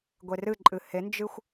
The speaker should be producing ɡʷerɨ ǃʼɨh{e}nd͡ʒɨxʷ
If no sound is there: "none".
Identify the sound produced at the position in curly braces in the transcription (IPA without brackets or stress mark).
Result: e